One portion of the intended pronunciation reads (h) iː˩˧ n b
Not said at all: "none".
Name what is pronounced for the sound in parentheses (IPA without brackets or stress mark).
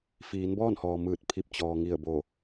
f